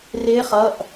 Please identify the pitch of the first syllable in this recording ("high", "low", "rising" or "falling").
rising